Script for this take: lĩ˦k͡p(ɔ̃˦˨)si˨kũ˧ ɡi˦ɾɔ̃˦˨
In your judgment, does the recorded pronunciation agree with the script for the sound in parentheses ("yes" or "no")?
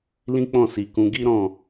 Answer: yes